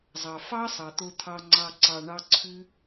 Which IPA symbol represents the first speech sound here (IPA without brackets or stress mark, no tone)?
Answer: zˤ